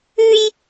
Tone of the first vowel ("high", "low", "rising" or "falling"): high